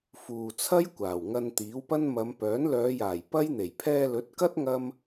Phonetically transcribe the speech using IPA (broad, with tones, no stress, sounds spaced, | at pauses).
f uː˨ t͡sʰ ɐ˥ j kʷ aː˨˩ w ŋ ɐ˧ n t̪ iː˨˥ w p ɐ˥ n m ɐ˨˧ m p œː˨˥ n l œː˨˧ j aː˨˩ j p ɐ˥ j n̪ e˨˩ j pʰ ɛː˧ l ɵ˨˥ t̚ k ɐ˥ t̚ ŋ ɐ˥ m